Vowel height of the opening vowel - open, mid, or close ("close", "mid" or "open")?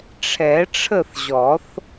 mid